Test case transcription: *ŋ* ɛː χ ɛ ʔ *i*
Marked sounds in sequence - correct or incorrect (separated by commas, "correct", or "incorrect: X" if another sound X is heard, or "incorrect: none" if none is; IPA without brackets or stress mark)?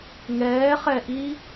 correct, correct